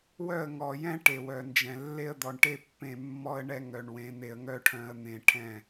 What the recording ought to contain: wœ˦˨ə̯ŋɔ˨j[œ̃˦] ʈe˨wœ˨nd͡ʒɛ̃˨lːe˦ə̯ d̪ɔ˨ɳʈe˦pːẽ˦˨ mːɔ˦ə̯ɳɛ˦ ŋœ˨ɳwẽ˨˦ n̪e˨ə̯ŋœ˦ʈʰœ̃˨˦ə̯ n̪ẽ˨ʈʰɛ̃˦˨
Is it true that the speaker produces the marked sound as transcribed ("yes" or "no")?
no